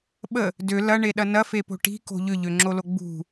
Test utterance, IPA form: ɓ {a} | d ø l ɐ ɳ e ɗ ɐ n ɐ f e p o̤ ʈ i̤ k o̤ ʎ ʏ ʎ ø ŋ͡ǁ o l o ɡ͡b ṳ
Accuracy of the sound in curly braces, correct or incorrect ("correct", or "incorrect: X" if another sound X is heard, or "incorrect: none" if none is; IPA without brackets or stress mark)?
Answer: incorrect: ə